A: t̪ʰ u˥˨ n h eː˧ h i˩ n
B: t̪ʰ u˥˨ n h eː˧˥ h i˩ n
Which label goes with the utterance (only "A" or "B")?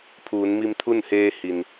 A